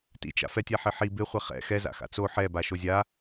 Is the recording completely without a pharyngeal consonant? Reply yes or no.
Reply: no